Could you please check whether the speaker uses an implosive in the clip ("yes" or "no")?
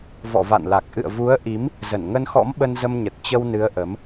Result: yes